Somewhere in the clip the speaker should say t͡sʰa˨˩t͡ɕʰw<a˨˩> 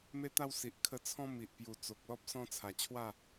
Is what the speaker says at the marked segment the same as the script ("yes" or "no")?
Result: no